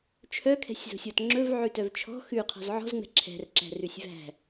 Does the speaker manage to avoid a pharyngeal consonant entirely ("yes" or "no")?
no